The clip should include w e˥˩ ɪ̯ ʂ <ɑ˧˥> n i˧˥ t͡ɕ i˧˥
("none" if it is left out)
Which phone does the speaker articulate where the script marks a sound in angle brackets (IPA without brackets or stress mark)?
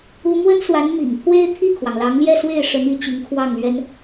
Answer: ə˧˥